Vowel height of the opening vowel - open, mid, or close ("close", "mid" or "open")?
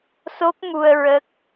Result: mid